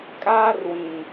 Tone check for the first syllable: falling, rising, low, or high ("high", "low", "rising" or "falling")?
high